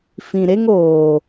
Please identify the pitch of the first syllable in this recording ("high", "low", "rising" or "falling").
low